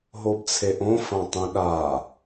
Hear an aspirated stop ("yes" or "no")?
yes